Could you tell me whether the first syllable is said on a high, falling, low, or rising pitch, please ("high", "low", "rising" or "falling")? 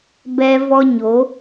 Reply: high